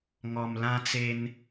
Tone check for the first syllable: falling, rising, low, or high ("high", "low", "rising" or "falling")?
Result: low